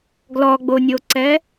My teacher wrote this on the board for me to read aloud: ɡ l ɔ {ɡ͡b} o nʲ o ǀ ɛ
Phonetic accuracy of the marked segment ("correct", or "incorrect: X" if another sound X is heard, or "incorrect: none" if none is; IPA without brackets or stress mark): correct